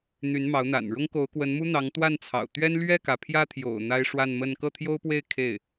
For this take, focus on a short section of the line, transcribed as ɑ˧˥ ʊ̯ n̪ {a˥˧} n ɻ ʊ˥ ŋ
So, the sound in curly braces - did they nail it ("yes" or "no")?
no